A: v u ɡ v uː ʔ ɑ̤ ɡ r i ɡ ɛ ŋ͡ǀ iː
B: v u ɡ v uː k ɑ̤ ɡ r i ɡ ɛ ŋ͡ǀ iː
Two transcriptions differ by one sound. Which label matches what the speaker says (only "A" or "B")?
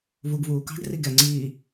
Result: B